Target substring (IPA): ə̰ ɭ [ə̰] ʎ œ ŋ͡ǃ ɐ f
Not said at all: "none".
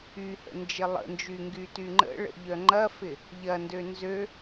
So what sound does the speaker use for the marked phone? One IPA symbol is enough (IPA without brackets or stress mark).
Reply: ə̰